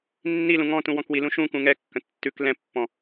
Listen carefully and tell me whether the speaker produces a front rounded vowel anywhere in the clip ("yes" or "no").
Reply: no